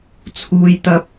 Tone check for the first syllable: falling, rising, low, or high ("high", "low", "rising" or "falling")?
low